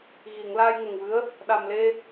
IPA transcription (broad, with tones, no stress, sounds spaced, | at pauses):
ɣ i˨˩˨ ŋ l aː˧ j ŋ ə˨˩ ŋ v ɨ˧˥ ə̯ | ɗ a˨˩ m l e˧